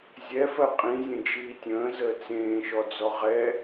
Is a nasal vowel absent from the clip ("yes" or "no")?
no